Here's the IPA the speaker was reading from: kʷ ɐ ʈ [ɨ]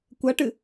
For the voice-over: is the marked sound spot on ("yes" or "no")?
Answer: yes